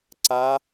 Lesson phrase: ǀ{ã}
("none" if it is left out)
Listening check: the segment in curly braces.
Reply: a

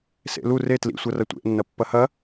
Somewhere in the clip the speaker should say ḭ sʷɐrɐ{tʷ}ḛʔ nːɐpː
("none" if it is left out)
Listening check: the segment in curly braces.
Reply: tʷ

